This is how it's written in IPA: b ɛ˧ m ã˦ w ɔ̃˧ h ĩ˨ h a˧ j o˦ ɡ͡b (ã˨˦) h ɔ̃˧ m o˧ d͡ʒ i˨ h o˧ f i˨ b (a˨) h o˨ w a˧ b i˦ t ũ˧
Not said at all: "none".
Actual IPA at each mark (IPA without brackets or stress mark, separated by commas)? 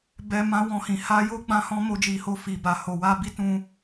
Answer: ã˧, a˨